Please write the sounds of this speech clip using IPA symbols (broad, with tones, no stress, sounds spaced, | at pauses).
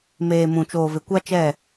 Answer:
m eː˨ m ũ˨ t͡ʃ oː˨ v ɪ˨ kʷ a˦ t͡ʃ ɛ˦˨